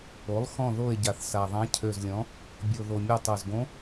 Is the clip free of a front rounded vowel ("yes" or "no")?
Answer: no